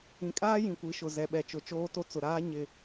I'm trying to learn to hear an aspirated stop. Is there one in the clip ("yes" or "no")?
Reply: no